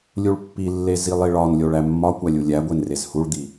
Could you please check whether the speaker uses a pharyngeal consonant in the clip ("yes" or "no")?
no